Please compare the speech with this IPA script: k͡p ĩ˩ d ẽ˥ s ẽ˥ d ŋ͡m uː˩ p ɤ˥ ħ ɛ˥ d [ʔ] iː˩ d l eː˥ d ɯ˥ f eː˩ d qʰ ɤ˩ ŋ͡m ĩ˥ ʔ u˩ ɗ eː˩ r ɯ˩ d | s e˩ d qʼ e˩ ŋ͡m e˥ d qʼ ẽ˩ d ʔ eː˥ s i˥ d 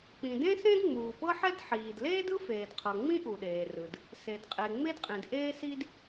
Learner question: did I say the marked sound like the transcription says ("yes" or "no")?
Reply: no